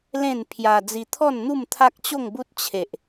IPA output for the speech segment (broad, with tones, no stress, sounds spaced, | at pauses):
l ẽ˥˧ n pʰ j a˧ d͡z i˧ t̪ʰ ɔ˥˧ n n̪ u˥˧ m t̪ʰ a˦ k̚ t͡ɕ o˥˧ ŋ b u˦ t̚ t͡ɕʰ e˨ ʔ